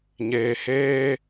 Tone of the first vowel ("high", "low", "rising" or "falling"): low